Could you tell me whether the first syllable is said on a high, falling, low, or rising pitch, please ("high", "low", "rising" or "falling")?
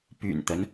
low